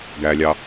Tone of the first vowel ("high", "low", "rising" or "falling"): low